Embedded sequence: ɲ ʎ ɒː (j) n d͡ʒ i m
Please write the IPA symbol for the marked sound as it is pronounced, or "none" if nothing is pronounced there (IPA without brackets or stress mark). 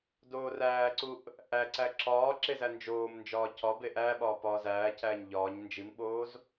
ɲ